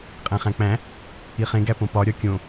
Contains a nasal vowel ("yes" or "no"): yes